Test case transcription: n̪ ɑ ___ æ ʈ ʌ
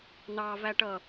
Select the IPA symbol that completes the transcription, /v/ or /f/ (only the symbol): v